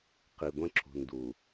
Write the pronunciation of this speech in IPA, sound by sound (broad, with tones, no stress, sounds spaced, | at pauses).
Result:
q i˨ ɡʷ ə̃˦ ǁ ṳ˨ n d u˨